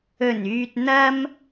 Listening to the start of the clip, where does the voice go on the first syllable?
low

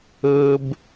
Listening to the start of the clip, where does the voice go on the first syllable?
high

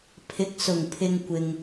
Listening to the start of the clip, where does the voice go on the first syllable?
rising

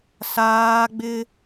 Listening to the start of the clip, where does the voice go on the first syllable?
high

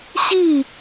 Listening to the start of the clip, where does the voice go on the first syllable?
falling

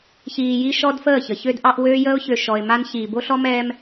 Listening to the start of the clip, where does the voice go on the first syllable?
low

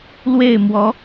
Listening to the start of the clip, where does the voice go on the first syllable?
falling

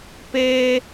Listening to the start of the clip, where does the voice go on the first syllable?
high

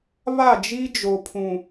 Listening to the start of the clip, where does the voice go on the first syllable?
falling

